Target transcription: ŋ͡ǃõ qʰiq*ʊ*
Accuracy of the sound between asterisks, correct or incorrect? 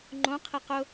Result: correct